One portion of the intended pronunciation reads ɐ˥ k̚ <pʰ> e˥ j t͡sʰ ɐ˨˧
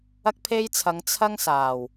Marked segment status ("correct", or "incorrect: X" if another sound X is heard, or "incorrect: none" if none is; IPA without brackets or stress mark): correct